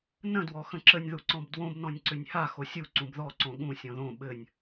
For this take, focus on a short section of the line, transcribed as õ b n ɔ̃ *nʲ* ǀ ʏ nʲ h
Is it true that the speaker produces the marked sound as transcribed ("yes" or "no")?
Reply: yes